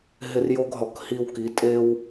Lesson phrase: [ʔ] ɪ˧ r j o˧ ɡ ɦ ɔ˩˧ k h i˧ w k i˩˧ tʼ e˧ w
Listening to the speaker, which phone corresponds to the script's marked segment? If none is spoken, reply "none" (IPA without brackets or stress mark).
ɦ